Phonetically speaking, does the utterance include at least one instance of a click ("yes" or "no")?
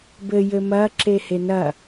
yes